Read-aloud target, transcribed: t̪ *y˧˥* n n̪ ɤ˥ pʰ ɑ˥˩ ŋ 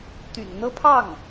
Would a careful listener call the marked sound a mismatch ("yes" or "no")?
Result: yes